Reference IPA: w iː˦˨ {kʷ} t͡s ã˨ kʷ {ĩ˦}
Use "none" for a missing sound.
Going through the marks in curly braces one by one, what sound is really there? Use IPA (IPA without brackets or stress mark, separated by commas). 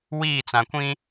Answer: none, ĩ˦